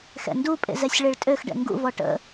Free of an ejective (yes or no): no